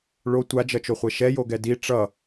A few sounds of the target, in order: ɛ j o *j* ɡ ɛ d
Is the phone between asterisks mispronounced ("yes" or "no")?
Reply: yes